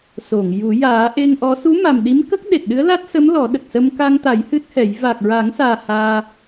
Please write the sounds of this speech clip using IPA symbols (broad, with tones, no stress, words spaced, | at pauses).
so˨˩˨ŋju˨˩˦ jaː˨˩˦ʔe˧ŋʔɔ˧˥ su˧˥ma˨˩m ɗi˧˥mkə˦˥k̚ɗe˨˩t̚ɗɨ˧˥ə̯ la˦˥t̚sə˧˥m lɔ˨˩˦ɗə˨˩k̚sə˧m ka˧ŋt̪a˨˩˦j hɨ˦˥t̚hɛ˨˩˦j va˨˩k̚ɹa˨˩˦ŋsaː˨˩ haː˧